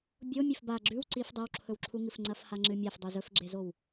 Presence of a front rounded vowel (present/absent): absent